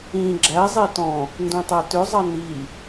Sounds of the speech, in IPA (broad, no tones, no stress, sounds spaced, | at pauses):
ĩ ɡ͡ǁ æ zˤ e t ɔ̃ | n d ũ tˤ æ t ʏ zˤ ɑ n i